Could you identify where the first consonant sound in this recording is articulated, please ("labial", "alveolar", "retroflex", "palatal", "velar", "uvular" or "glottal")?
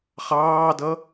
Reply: uvular